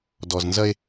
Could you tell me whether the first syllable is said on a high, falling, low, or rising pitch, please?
low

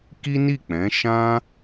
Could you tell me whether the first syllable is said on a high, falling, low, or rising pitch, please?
high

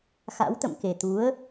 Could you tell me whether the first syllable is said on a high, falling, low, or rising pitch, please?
rising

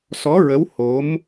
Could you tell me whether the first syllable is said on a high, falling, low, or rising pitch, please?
rising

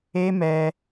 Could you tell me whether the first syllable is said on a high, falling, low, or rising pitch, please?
high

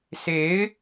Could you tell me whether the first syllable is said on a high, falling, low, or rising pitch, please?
rising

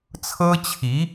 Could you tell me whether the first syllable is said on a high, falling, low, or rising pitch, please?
high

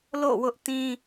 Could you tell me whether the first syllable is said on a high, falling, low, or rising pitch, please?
falling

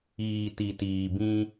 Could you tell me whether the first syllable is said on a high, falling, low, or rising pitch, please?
low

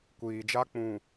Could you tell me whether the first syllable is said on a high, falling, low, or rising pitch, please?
low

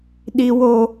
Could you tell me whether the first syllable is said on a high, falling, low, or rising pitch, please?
low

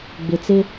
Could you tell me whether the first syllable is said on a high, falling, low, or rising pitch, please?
low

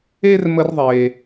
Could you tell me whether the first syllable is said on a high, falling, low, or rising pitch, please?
high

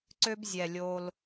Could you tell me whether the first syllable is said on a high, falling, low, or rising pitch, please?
high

